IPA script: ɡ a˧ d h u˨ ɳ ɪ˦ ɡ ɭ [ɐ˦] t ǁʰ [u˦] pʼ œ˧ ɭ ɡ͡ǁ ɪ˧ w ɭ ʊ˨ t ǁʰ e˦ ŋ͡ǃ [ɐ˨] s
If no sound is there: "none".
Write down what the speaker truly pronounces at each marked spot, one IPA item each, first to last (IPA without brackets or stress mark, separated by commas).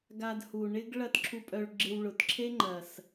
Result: ɐ˦, u˧, ɐ˨